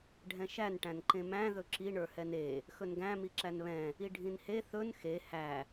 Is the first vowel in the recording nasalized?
yes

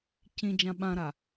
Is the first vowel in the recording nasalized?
yes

